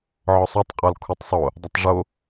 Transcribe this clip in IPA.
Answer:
ʕ ɔ sˤ o tˤ qʼ ɔ l kʰ u tˤ sˤ o | dˤ ə tˤ ʐ o

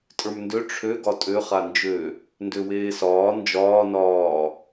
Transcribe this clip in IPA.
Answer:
tʼ ə˞ m n d ø ʈ͡ʂʰ ø ɡ ɒ tʼ ø χ a n d͡ʒ ø | n d ø w eː s ɒː n d͡ʒ ɒː n ɒː

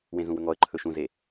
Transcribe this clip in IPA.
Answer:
w ẽ z ũ w ɵ ŋ ɔ ə̯ ǃʰ ɵ ʃ ũ z e

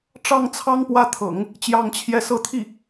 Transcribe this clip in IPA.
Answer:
ʈ͡ʂ ɑ˥˩ ŋ t͡sʰ ɑ˥ ŋ p w ä˥˩ t̪ʰ ɤ̰˨˩˦ ŋ | t͡ɕ j ɑ˥˧ ŋ t͡ɕʰ j ɛ˥˧ s ɤ˥˧ t̪ʰ i˥˩

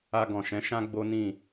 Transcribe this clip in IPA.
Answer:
a˧ ɡ ɔ̃˨ ʃ ɛ̃˨˦ ʃ ã˦ ɡ͡b o˦ n ĩ˦˨

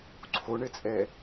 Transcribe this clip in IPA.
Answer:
ǀʰ o ɳ ɘ t͡sʼ ɛ

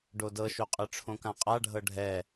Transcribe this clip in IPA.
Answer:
ɖ o d ɤ ʃ o qʼ ɯ ʈ͡ʂʰ õ k ã qʼ a ɖʱ ɤ ɖʱ ɛ

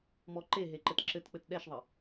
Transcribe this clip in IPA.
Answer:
m ɔ ǃ e ɦ e ǃ ɘ t ǁ ɘ t k͡p ɘ t ɗ ɛ ʃ ðˤ ɘ

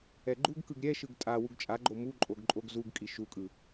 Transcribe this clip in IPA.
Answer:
ɛ ɡ͡ǃ u ɡ k ɯ ɡ ɾʲ ɛ ʃ ɯ ɡ tʼ a w u ɡ t͡ʃʼ a ɡ͡ǃ o m u ǃʼ o ɡ ǃʼ o ɡ z u ɡ kʼ i ʃ u kʼ ɯ

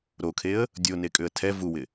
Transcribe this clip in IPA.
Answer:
ɾ o kʰ e ə̯ | dʲ o n e kʼ ʏ ə̯ tʰ ɛ v u w ɪ

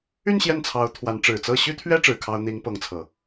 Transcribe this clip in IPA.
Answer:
y˥˧ n ɕ j ɛ˥˩ n t͡sʰ ɑ˧˥ ʊ̯ t̪ʰ w a˧˥ n ʈ͡ʂ ɻ̩˨˩ t͡s ɤ˥˩ ɕ y˥ t̪ʰ ɥ ɛ˥ ʈ͡ʂ ɻ̩˧˥ kʰ ɑ˥ ʊ̯ n̪ i˧˥ ŋ p ɤ˧˥ ŋ t͡sʰ ɤ˨˩˦

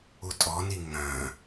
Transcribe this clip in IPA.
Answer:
u tʼ ɔ n i ŋ œ̃

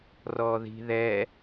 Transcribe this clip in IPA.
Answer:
r ɔ ð i̤ ð ɛ

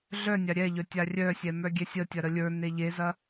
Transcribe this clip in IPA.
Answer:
ɮ œ nʲ a ɾʲ ɛ ʎ œ tʲ a rʲ œ sʲ ɛ m œ ɡʲ ɛ sʲ ə tʲ ɐ ɾ ə lʲ ə˞ n e ʎ e z ɐ

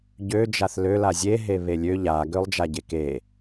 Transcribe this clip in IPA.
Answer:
ɟ ø d͡ʒ a θ l ø l a zʲ e ɦ e β e lʲ ø ʎ a ɡ ø lˠ d͡ʒ a ɟ e k e

